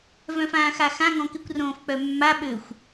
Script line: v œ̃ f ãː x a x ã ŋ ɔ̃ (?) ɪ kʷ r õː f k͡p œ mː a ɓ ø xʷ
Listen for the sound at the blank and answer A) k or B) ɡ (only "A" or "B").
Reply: A